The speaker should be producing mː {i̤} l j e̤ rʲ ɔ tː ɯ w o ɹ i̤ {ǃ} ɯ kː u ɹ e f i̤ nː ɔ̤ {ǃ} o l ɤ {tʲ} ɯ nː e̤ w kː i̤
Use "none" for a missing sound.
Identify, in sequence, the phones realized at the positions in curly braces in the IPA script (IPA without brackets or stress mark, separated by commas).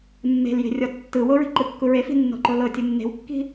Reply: e̤, ǃ, ǃ, tʲ